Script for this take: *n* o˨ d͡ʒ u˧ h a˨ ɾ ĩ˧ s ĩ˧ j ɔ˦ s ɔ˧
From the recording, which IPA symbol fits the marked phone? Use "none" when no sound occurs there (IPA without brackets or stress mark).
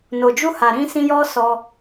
n